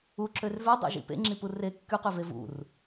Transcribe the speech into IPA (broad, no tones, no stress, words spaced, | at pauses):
uǁør vødˤḛʒḭ pḛŋ͡ǁipu re kːyqøve vṵr